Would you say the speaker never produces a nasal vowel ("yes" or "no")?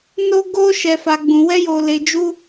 no